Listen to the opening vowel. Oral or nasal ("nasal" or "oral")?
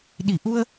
oral